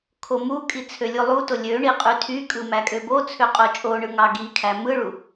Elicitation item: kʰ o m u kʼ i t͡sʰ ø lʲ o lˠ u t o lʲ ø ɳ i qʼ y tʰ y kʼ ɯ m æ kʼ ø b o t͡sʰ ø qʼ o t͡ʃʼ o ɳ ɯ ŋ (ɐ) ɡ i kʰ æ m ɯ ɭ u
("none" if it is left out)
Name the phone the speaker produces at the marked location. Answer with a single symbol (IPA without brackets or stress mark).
ɑ